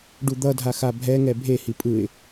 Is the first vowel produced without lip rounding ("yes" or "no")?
no